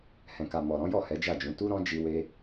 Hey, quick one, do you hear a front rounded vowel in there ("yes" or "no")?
no